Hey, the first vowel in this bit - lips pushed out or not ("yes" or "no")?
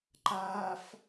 no